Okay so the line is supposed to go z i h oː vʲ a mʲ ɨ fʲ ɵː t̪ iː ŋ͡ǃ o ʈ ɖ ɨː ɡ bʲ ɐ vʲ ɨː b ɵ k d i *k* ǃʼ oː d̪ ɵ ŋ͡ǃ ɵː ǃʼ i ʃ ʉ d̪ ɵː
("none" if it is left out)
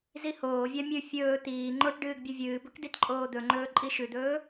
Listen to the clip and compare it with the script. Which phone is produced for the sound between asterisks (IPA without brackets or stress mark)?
t